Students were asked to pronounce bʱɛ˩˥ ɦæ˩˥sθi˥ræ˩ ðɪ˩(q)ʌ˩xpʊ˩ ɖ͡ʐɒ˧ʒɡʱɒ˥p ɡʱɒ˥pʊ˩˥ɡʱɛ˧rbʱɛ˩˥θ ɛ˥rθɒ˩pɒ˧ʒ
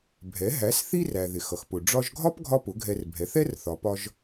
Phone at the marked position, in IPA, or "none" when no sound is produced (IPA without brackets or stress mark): x